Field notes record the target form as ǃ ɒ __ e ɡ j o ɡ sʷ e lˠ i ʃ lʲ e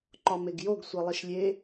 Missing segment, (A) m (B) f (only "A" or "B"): A